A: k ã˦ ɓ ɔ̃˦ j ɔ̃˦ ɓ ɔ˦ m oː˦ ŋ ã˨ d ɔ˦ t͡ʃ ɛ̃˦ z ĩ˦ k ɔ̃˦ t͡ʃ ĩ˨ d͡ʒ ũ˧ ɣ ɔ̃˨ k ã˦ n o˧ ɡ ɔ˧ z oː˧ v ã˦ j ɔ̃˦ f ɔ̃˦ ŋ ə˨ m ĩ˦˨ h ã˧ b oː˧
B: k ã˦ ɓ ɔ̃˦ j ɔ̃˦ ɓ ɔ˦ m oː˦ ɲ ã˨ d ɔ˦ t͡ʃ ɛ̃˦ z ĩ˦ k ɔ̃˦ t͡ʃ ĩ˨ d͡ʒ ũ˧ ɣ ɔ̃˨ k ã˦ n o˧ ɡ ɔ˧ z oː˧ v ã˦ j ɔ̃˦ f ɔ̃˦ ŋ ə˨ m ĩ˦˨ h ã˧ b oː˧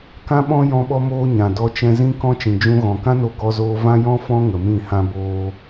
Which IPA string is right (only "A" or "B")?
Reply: B